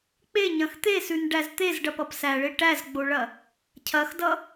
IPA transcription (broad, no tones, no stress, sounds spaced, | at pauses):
k͡p e ɲ ɐ̃ x t̪ e s ʉ n ɖ æ z t̪ e z ɖ ɐ p ʌ p s æ ɭ e ʈ æ z ɡ͡b o ɭ ɐ | cʰ ɐ x d ʌ